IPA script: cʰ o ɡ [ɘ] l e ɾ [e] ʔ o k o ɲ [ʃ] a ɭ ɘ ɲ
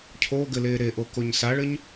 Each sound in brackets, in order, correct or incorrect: correct, correct, incorrect

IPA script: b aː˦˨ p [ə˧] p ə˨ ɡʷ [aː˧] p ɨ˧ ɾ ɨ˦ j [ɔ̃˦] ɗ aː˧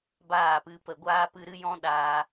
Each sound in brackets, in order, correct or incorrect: incorrect, correct, correct

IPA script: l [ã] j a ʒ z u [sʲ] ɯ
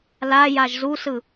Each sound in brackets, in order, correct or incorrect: incorrect, incorrect

